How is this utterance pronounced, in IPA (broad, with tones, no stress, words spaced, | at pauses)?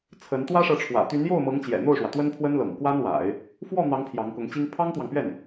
t͡sʰə˧˥n t̪wä˥ʂɤ˧˥ʈ͡ʂʰwä̰˨˩ t̪y˧˥njo˥˩ʊ̯mɤ˧˥ŋt͡ɕjɛ̰˨˩ n̪o˥˩ʊ̯ʂwä˩ t̪wə˥npʰwə˥nlɤ̰˨˩ŋ kwa˥nwa̰˨˩˦ɪ̯ | fwɔ˥˩n̪ɑ˧˥ŋ pʰjɑ˧˥ŋkʊ˧˥ŋt͡ɕi˥ŋ pʰɑ˥ŋt̪wɑ˨ŋpɥɛ˥˩n